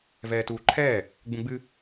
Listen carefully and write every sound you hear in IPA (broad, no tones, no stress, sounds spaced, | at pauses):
v ɛː t uː ǃʰ ɛː | ɡ͡b ũ ɡ͡b ɨ